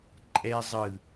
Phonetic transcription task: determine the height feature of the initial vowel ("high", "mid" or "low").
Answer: mid